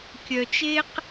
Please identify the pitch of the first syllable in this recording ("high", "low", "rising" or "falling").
low